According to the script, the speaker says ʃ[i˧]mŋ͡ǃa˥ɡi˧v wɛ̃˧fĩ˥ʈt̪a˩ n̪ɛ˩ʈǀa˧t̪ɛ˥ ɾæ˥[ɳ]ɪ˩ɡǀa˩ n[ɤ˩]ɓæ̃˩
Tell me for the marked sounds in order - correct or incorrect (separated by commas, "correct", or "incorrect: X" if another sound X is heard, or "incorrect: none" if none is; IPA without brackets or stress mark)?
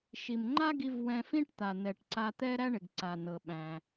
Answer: incorrect: i˩, correct, correct